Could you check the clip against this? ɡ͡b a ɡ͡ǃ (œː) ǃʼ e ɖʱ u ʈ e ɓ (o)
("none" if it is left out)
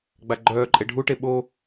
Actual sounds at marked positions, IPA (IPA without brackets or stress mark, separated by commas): œː, o